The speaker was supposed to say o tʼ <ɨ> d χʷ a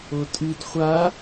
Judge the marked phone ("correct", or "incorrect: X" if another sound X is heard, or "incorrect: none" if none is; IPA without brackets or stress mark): correct